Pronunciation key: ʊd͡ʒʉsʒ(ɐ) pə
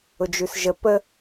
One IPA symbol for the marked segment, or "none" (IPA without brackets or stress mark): ə